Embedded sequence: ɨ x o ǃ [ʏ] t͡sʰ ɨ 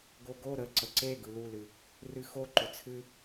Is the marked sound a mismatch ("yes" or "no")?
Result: no